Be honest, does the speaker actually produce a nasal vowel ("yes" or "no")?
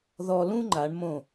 yes